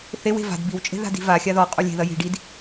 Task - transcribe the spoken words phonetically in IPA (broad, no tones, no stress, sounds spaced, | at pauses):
θ e w e̤ v a̤ d b i w t͡ʃʼ e̤ ð a̤ d i̤ v a xʲ a ð ɔ qʼ o lʲ e̤ ð ɐ j i̤ ɖ i d